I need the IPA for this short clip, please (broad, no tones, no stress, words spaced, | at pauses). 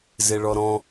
zeɭɔɾɔ̃